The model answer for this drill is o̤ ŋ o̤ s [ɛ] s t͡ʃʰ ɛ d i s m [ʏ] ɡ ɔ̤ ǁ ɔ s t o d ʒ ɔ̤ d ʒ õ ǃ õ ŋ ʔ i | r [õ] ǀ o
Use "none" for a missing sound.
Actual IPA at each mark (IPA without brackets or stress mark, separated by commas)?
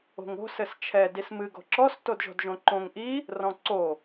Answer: ɘ, ɨ, ɔ̃